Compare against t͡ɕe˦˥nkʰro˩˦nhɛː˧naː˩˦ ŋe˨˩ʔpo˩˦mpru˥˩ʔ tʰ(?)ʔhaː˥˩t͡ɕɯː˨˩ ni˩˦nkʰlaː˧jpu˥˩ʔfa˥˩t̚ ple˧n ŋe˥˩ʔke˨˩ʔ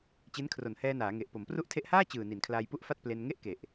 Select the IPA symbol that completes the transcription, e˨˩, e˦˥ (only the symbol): e˦˥